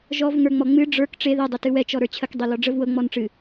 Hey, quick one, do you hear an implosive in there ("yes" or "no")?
no